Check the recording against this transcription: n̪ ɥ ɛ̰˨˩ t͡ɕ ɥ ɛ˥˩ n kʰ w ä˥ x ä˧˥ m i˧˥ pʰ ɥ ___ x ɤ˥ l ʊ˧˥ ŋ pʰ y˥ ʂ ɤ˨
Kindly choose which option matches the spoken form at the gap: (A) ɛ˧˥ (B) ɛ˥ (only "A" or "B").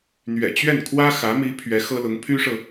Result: A